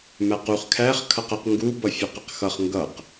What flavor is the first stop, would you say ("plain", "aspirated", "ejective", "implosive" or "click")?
plain